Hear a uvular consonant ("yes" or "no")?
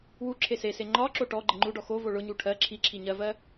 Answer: no